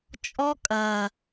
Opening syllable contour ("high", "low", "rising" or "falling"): high